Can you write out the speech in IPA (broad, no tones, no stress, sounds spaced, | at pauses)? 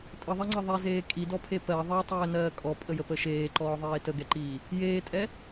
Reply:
tʼ ə ðˤ e ŋ͡ǀ ɜ ðˤ e z eː kʼ i d ɔ pʰ e p ɜ ðˤ i tˤ ɛː n ɜː kʼ ɔ pʼ ə j ə p ə ʃ eː ǃ ɔː ðˤ eː t ə ɡ ɛ ǃ iː | j eː tʼ ɛ